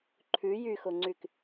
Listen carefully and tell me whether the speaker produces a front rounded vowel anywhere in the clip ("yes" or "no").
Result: yes